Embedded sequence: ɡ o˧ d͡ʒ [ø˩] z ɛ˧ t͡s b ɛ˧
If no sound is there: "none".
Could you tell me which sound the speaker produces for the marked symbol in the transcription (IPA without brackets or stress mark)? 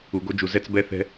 u˩